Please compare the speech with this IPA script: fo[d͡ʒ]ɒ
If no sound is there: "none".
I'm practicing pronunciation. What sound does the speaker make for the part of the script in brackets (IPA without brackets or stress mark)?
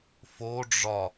ɖ͡ʐ